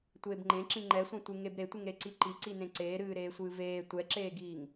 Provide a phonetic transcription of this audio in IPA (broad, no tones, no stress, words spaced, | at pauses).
tʷeːbŋ͡ǃẽǁĩ ŋ͡ǃɛsʷẽtʷɨ ŋebɾetʷɨŋɾe ǀiǃiǀinẽ ǀeːɾɨː ɾeːsʷɨːveː tʷɛǁeːɡiːŋ